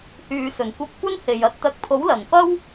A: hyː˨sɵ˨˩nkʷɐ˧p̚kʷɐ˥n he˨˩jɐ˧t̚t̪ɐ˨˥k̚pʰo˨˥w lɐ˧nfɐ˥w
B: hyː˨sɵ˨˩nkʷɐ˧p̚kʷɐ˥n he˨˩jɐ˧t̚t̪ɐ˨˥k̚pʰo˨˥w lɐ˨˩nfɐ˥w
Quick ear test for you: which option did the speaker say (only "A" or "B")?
B